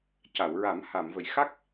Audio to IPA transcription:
c a˨˩˨ w ɹ a˨˩˦ m h a˨˩˨ m v ə˨˩˨ j x a˦˥ k̚

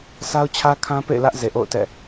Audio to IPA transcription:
s a˦ ʊ̯ t͡ɕʰ ä˦ kʰ ã˦ p ḛ˦˨ ɪ̯ l ä˦ ʔ z e˨ ʔ o̰˦˨ ʊ̯ t ɛ̰˦˨

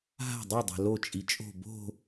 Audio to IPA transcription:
ɦ a̤ dˤ o dˤ a̤ l o t͡ʃʼ i t͡ʃʼ o̤ b o̤

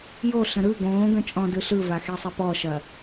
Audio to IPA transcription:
j o ɬ ə̃ ɾ ɯ ɡ õː ɡ ə̃ t͡ʃʼ ɔ̃ d ɯ ɬ ɯ v a x e sˤ ɛ p ɔ ʃ ɐ

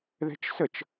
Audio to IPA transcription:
ð ɛ̤ t͡ʃ s ə t͡ʃ

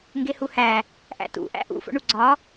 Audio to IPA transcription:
ŋ ɡ e h u h æ | ʔ æ̰ t ṵ ʔ æ̰ ʔ ṵ f o̰ ɳ u ɡ͡ǀ ɒ

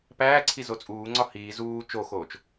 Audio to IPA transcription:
p æː ǀʰ i z o t͡sʼ uː ŋ͡ǀ ɒ h iː z uː t͡ʃ o x oː t͡ʃ

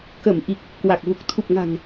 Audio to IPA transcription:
k ə˧˩ m ʔ i˨˩ k̚ | k w a˨˩ k̚ v u˨˩ k̚ t̪ʰ u˨˩ p̚ ŋ a̤˨˩ ŋ

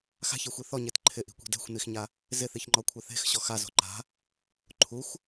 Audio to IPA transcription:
x a̤ ç i xʷ i θ ɔ ɲ e t ǃʰ ɪ ʔ i̤ kʷ e̤ d ɛ̤ xʷ n i x ɲ a | z ɪ θ i ç ŋ͡ǃ ɔ kʷʰ a θ e̤ x ɕ ɔ x a z o̤ ǃ a̤ | ǃʰ u xʷ

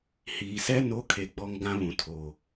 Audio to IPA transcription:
h iː˨ s ɛ˦ n o˨˦ kʰ e˨ ɡ͡b ɔ˦ ŋ ɡ ã˦ β ũ˨ tʰ o˨

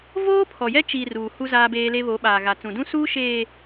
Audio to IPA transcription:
v oː˦ pʰ ɔ˨ j ɛ˦ t͡ʃ i˨ r uː˨ h u˦ z aː˦ b eː˦ l e˦ β o˨˦ ɓ aː˨ ɣ a˨ t͡s ũ˨ d ũ˦ s uː˦ ʃ eː˨

